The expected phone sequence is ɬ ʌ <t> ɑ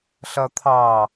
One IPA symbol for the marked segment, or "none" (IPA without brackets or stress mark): t̪ʰ